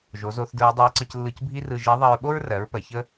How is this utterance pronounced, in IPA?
ʒ o˩˧ z o˩˧ θ d ɹ ə˧˥ dˤ ɯ˧˥ ɐ̯ ǀ ə˧ c lː ɯ˧ c bʱ i˥ r ɯ˧ ʒ ɛ˧˥ ðˤ ɐ˧ ɹ ɓ o˥ ɹ r ɜ˩˧ ɹ p ɜ˩ ç ə˥

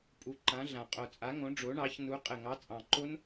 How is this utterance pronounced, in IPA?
pʼ u˨˦ ǃ ã˨˦ ɮ ã˨˩ qʼ o˨˩ t͡sʼ a˨˦ ŋ õ˨˦ ɖ͡ʐ o˨˦ ɳ ɑ˨˦ ç n u˨˦ qʼ ɘ˨˩ ŋ ɑ˨˦ t͡sʼ ɑ̃˨˩ ǃ o˦˥ n

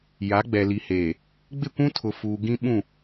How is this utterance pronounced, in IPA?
j a˨˦ ɡ͡b ɛ˨ l i˨ h eː˨ | ɡ͡b ɪ˦˨ kʷ ũ˦ tʰ ʊ˨ f uː˨ ɡ ĩ˦ ɓ ũ˦˨

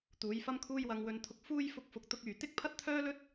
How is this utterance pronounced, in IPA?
t̪ uː˨˥ j f ɐ˥ m kʰ uː˥ j w ɐ˧ ŋ w ɵ˨ n t̪ʰ ʊ˨ k̚ f uː˥ j f ʊ˧ k̚ f ʊ˨ k̚ t̪ ʊ˧ k̚ yː˨˩ t̪ ɪ˥ k̚ pʰ ɐ˥ t̚ t̪ʰ œː˥ l ɵ˥ t̚

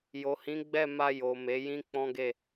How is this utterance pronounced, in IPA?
j o˨ h ĩ˨˦ ɡ͡b ɛ˦˨ m a˧ j o˨ m e˨˦ j ĩ˦ k͡p ɔ̃˦ ɡ e˦˨

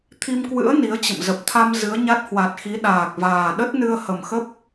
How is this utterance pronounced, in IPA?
t̪ʰ i˧ m k w ɨ̰˧˥ ə̯ n i˨˦ ə̯ t͡ɕ ə̰˧˨ m z ə˨˩ p̚ t̪ʰ a˧ m z ɨ˨˦ ə̯ ɲ a˦˥ t̚ h w a˨˩ t̚ x i˨˦ ɗ aː˨˩ k̚ v aː˨˩ ɗ ə˦˥ t̚ n ɨ˧ ə̯ h ə˨˩ m x ə˦˥ p̚

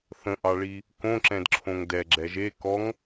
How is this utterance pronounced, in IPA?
θ ə̃ ʔ ɑ ɭ i | k õ ǁ ɛ̃ d ǁʰ õ ŋ d ɛ ɡ͡ǁ ɛ ʒ e k ɔ ŋ

